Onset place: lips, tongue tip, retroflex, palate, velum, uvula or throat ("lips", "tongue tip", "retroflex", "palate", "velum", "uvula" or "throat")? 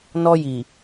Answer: tongue tip